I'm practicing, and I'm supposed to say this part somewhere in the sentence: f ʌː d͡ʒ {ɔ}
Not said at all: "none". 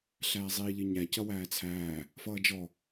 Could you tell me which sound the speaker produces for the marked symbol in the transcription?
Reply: ɔ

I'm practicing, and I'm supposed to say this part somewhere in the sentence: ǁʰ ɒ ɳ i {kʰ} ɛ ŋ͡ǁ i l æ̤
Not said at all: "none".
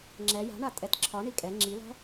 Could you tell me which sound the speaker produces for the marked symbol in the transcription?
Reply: kʼ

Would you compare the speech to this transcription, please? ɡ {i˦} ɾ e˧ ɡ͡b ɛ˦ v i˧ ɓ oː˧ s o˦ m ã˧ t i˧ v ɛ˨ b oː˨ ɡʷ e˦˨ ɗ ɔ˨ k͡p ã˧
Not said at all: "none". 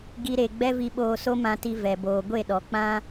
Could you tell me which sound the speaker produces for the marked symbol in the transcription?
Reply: i˦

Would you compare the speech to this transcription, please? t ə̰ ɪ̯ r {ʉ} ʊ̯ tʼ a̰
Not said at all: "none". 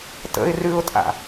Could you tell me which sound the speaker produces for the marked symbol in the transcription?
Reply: ʉ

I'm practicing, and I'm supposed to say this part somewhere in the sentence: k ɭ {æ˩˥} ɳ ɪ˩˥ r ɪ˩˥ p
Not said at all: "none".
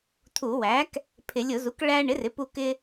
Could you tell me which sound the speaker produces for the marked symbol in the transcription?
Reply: æ˧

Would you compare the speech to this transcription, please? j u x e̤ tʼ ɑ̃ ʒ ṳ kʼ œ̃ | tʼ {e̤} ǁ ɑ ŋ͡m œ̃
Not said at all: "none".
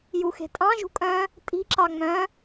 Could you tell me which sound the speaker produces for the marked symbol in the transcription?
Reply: i̤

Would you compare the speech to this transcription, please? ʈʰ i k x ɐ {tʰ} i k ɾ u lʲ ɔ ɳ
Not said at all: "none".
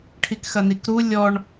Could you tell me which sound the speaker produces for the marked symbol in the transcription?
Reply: n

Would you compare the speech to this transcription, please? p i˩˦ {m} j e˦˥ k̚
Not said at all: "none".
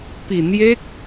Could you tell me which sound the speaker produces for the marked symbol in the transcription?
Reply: n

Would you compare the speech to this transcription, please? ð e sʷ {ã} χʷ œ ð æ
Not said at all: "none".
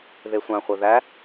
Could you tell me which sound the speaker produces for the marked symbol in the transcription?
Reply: ã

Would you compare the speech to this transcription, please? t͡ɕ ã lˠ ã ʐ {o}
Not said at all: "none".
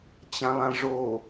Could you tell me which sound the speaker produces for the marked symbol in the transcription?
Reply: o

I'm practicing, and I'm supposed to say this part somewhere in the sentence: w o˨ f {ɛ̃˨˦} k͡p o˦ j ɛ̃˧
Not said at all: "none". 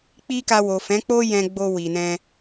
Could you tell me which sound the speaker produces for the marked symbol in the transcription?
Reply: ɛ̃˨˦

